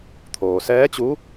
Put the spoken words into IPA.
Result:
t̪ʰ oː˩ s ɛː˧˥ t͡ɕ u˧˥

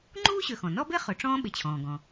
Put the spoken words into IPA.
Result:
ŋ͡ǃ uː˥ ɕ ø˨ x ɔ̃˩ n ɔ˥ b e˥ χ ø˨ ʈ͡ʂ ɔ̃ː˥ ɓ ɪ˨ t͡ɕʰ ɔ̃ː˩ ɡ ɔ̃˩

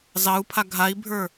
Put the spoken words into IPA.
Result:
z ɑ u̯ pʰ a ɡʱ a i̯ bʱ ə˞

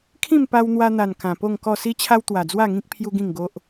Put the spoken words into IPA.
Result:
kʰ ĩ˥˧ m p a˧ w n̪ w a˧ n̪ a˨˩ n k ã˨˩ p o˥˧ ŋ k ɔ˥˧ s i˦ t͡ɕʰ a˦ w t̪ w a˨˩ d͡z w a˥˧ ŋ ĩ˦ k̚ pʰ j u˦ ɡ ĩ˥˧ ŋ ɡ o˦ ʔ

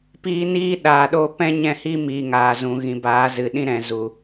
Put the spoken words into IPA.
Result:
p iː˧ n iː˦ ɗ aː˨ ɗ oː˦ p ɛ̃˦ ɲ ɛ̃˦˨ h i˦ m iː˨ ŋ aː˨ z ũ˨ ɣ ĩ˨ b aː˨˦ z ɨ˨ ɗ ĩ˦ ɾ ɛ̃˨ z u˨

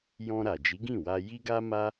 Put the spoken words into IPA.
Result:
j ɔ̃˧ ɾ a˨ d͡ʒ i˨˦ ɡ ĩ˦˨ w a˧ j i˦ ɡ a˦ m a˦

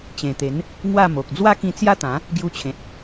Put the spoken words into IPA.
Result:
t͡ɕ ẽ˨˩ t̪ e˨˦ n | ŋ w a˥˧ m o˨ k̚ d͡z w a˦ k ĩ˧ t͡s j a˦ t̪ ã˨˦ | ɡ j u˧ t͡ɕʰ ẽ˨ t̚

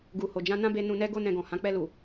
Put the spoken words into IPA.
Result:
ɡ u˨ h o˨ d͡ʒ ã˧ n ã˦ b e˧ n ũ˧ n ɛ˦ ɡ o˦ n ɛ̃˧ ɡ ɔ̃˨ h ã˨˦ k͡p ɛ˧ l u˨

